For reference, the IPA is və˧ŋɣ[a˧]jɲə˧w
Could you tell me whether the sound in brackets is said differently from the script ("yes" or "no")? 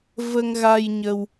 no